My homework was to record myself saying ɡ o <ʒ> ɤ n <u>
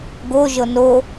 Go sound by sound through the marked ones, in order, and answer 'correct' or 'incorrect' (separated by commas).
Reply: correct, incorrect